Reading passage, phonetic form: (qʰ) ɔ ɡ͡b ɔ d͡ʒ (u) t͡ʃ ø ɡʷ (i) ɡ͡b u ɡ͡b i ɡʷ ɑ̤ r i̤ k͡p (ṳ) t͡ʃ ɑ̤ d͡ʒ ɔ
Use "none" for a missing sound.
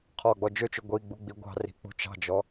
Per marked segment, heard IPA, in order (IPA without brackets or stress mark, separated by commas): qʰ, ø, i, ṳ